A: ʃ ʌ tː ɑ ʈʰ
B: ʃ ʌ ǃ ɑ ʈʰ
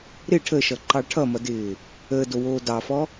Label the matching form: B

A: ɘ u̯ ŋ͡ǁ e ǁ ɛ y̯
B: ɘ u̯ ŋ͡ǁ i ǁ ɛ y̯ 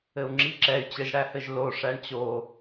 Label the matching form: B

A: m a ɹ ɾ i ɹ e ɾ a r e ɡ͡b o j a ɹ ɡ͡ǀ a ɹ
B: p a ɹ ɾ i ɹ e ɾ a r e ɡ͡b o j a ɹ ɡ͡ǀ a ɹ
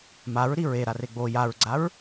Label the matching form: A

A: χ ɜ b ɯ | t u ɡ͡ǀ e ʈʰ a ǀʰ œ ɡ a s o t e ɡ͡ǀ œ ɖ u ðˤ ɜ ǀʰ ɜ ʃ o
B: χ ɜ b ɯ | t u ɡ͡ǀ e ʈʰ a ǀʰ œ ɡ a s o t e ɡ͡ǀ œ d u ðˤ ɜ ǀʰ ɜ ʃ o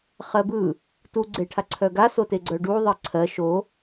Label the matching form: A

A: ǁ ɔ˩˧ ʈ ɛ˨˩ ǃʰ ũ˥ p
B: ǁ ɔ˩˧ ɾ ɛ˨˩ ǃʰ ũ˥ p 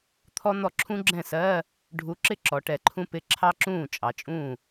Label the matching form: A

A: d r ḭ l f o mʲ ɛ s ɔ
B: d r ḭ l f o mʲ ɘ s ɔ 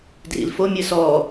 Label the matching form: B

